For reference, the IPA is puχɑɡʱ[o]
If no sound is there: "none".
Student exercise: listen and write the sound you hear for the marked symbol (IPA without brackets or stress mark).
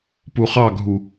u